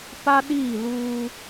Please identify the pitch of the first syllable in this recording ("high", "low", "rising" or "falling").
high